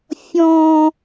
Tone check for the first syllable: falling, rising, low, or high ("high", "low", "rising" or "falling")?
high